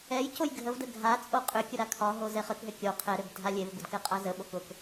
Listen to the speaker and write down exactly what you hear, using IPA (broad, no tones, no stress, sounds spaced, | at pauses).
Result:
ɛ j c o j ɡʱ ə v d ə ɡʱ a t͡sʼ o qʼ ʏ kʲ ʊ ɾ a kʰ ɒ ɦ o z ɛ χ ə k ɦ ʏ kʲ o qʰ ɛ ɾ ʏ b dʱ a lʲ e v b ʊ d k ɛ qʼ a z ə ɓ o k ʊ k